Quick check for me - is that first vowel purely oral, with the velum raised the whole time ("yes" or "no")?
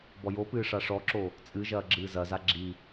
yes